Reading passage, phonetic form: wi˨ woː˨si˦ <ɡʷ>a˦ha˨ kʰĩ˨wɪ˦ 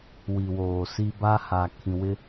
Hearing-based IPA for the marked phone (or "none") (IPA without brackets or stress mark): b